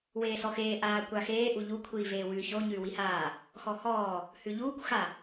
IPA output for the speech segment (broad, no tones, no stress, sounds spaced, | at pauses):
w eː s ɔ x eː ʔ aː kʷ a x eː ʔ u ʎ u kʷʰ iː v eː w ʉː ç o ɲ ʉː w i h aː | x ɔ h ɔː | h ʉ ʎ uː kʷ x a